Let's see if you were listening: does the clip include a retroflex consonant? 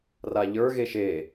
no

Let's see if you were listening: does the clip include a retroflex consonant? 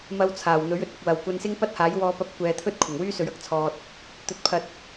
no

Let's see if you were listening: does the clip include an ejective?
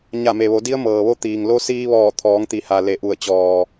no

